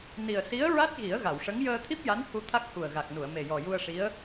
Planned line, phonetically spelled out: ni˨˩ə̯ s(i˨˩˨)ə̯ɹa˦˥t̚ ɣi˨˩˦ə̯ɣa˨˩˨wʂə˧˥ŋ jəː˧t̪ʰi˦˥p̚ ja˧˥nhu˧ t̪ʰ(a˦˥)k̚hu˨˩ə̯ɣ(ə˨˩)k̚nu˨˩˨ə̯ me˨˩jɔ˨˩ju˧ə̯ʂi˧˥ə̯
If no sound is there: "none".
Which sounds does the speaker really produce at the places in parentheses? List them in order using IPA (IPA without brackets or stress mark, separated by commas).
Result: i˧˥, a˦˥, a˨˩